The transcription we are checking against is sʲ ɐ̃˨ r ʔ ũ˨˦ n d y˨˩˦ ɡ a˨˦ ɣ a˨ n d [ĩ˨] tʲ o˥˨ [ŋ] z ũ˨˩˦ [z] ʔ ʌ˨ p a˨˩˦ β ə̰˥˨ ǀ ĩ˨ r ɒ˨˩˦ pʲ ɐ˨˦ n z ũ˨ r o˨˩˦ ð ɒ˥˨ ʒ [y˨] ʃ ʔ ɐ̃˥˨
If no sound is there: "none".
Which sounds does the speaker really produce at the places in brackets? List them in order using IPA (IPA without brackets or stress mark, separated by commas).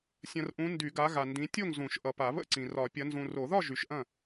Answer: ĩ˨˦, ŋ, ʃ, y˨